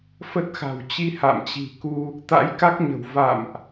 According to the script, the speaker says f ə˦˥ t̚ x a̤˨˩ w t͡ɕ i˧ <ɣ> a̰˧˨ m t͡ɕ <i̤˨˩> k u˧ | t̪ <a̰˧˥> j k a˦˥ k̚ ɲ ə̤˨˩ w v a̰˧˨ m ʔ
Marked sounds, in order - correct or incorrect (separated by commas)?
incorrect, correct, correct